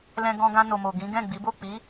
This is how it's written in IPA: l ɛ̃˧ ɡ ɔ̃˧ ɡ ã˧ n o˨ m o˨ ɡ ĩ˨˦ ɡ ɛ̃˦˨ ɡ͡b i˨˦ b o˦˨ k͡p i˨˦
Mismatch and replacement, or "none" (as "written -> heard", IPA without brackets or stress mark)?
none